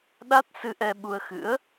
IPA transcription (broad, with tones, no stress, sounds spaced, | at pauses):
ɗ a˦˥ t̚ s ɨ˧ ʔ ɛ˧ ɓ u˧ ə̯ x ɨ̰˧˥ ə̯